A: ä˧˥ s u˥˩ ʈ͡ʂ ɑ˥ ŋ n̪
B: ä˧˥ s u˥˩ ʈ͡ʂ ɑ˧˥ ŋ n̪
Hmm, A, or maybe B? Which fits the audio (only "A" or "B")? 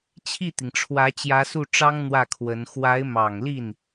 A